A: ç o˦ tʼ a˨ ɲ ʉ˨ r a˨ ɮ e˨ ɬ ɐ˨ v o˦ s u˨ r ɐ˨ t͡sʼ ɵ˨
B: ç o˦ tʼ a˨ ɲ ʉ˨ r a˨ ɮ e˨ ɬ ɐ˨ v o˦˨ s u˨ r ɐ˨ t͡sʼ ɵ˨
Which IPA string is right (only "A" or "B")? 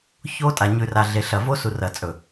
A